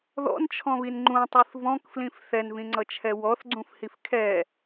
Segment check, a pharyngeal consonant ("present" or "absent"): absent